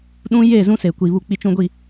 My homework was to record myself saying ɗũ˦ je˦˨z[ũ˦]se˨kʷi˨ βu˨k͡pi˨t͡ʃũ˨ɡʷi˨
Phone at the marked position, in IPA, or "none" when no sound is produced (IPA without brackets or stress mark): ũ˦